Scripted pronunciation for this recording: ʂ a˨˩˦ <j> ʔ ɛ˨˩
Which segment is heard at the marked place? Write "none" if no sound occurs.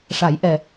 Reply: j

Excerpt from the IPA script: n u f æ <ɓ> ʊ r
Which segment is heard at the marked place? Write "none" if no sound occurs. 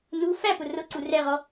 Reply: p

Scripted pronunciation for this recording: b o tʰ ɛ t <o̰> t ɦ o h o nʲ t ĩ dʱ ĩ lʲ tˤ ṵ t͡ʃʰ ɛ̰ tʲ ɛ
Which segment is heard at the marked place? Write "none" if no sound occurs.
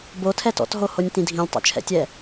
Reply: ɔ̰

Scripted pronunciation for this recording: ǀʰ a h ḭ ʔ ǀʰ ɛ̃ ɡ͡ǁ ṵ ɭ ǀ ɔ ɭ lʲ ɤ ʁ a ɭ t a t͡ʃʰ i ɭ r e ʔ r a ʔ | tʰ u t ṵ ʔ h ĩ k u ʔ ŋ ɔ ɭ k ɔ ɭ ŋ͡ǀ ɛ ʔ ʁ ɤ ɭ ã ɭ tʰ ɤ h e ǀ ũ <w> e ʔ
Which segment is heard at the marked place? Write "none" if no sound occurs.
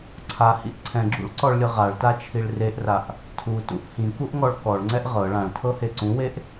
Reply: w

